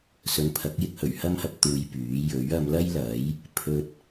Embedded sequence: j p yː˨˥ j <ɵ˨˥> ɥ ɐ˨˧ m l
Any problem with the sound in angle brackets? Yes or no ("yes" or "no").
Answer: no